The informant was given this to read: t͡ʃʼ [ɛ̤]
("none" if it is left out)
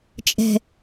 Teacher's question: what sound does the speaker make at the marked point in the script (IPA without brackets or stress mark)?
ɛ̤